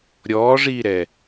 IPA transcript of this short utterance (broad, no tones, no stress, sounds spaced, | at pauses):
ɾʲ ɔː ʐ iː ɾ ɛ